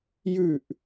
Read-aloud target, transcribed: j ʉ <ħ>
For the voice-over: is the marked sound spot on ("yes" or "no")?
no